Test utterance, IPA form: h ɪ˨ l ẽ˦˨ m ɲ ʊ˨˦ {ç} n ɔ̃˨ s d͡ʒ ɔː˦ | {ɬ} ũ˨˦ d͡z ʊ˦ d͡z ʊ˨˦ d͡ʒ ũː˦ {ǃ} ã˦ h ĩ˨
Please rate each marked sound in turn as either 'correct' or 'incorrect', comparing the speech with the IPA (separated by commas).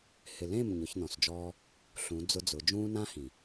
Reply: correct, correct, incorrect